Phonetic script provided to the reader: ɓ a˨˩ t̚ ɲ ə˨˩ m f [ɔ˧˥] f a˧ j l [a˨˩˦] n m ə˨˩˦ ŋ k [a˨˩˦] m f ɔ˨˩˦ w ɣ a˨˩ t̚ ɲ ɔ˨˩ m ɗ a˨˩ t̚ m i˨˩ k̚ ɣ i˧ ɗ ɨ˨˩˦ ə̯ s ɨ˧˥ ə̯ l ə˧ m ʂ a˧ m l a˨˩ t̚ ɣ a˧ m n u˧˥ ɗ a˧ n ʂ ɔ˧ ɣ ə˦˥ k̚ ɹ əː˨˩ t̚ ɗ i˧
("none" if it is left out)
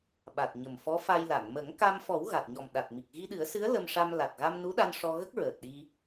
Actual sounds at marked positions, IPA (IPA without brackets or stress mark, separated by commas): ɔ˧˥, a˨˩˨, a˧